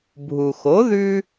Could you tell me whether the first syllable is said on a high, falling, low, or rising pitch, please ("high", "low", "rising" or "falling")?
low